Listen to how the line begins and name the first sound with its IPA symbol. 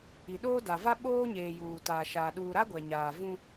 i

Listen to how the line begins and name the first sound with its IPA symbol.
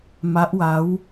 m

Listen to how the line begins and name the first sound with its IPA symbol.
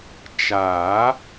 t͡ʃ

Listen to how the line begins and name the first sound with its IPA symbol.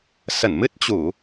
s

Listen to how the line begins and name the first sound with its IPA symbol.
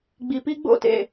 ɡ͡b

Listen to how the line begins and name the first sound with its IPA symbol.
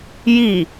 j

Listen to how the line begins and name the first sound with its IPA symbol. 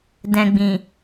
d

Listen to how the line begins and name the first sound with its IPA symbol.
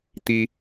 t̪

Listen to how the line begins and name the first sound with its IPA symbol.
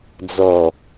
d͡z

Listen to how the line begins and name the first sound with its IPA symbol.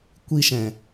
kʷ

